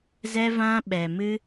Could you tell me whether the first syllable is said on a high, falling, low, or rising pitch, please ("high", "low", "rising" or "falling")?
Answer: high